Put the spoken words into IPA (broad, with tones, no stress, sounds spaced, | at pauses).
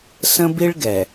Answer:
s ə̃˦ b i˦ ɭ ɡ ɛ˨